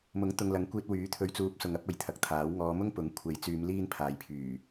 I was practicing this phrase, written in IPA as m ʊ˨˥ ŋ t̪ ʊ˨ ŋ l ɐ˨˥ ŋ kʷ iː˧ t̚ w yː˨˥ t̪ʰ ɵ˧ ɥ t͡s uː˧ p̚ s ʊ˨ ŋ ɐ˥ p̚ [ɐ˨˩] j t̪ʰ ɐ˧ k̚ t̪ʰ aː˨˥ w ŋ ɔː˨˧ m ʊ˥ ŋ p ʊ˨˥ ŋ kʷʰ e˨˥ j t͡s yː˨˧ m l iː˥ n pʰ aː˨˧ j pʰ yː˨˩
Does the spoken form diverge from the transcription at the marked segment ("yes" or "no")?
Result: yes